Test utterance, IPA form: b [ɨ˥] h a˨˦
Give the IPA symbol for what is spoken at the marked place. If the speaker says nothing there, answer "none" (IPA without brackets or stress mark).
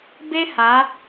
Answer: e˥